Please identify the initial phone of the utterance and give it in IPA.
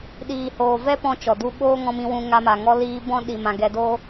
ɗ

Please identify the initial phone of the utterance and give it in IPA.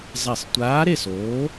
zˤ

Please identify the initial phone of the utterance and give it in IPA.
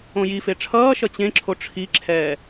õ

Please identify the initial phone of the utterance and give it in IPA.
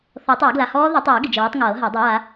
θ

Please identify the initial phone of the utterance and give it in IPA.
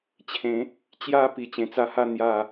t͡ɕʰ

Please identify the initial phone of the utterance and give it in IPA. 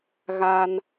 ɣ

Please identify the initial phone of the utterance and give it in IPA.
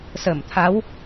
s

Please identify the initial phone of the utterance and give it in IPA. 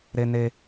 ɾ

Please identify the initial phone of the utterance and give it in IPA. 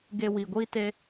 ɡ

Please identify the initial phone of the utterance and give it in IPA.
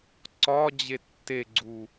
ǀ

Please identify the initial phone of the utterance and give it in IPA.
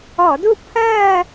ɔ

